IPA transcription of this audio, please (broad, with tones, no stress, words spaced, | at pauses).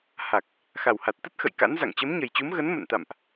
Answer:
ha˨˩k̚ | xa˨˩wha˨˩t̚t̪ə˦˥t̚ xə̰˧˨jka̰˧˥nza̰˧˨ŋ t͡ɕə˨˦mɲə˨˩jt͡ɕu˨˦m ɣə˨˦n mə̰˧˨nt̪a̰˧˨mʔ